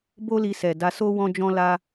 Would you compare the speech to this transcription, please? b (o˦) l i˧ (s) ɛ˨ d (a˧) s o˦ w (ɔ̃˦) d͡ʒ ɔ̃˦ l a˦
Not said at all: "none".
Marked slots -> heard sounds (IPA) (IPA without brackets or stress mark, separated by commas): o˦, s, a˧, ɔ̃˦